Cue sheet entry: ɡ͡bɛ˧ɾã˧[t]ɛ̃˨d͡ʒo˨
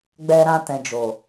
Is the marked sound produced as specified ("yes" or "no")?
yes